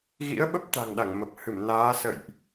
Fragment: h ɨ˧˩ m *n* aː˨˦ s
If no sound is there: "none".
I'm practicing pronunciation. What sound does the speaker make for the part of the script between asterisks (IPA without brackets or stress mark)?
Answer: n